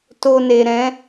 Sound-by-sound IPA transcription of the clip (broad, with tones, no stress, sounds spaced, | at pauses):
t o˨ n e˨ ɾ ɛ̃˨˦